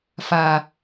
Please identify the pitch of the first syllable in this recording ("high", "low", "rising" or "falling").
low